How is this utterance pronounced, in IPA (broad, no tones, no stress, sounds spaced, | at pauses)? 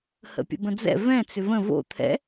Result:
h ə̰ pʲ ə̰ b ə̃ d͡z ɛ̰ v ɛ̃ t͡s ʏ v ə̃ v o̰ t̪ʰ ɛ̰